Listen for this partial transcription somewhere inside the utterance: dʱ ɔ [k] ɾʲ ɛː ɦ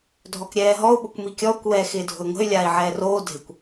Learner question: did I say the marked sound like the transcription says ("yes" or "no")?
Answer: yes